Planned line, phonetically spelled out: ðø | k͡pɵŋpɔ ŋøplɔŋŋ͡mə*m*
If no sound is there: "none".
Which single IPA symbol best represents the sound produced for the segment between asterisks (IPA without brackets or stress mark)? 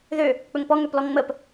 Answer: p